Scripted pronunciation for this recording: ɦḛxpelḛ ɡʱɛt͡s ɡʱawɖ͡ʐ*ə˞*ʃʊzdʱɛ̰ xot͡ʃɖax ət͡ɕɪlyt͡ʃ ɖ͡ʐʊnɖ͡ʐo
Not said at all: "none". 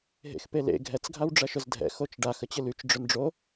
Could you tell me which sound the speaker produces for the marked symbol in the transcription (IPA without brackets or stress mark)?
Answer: ɐ